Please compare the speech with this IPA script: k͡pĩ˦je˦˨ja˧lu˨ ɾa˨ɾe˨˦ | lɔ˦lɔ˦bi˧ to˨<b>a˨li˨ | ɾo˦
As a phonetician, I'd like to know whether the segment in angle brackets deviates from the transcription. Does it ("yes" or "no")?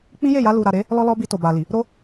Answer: no